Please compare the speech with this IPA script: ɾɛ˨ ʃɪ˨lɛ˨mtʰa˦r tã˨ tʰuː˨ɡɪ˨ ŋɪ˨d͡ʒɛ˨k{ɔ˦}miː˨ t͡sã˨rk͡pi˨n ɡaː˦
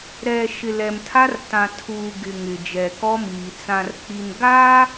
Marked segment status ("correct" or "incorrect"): correct